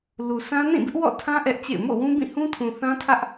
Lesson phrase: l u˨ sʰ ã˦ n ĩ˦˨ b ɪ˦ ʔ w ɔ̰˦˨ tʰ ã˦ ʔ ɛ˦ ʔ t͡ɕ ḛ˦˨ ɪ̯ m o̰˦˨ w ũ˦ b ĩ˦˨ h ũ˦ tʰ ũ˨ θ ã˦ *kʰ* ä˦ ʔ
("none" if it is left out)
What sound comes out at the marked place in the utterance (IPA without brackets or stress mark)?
tʰ